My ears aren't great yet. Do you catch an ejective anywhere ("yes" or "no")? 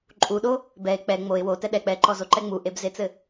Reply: yes